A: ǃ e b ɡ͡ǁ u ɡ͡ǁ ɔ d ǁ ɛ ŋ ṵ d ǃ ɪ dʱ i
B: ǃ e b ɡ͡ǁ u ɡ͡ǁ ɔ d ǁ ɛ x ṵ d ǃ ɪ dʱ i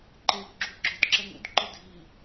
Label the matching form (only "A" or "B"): A